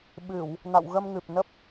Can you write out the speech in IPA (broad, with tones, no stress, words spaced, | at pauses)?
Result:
ɓɨ˧˩˨w | na̰˧˨wɣə˧mŋɨ˨˩p̚nə˦˥p̚